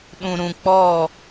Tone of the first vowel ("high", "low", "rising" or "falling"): low